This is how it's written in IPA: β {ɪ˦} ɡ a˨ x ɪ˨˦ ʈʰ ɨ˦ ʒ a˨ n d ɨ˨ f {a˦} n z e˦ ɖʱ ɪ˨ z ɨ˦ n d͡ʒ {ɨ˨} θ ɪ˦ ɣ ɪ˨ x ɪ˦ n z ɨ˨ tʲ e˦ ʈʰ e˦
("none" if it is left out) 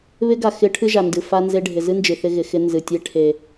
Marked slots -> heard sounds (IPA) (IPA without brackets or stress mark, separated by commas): ɪ˦, a˦, ɨ˨